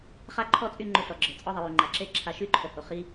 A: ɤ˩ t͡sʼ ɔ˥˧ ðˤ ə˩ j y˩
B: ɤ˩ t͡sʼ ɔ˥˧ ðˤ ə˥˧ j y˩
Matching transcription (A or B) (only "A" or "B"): A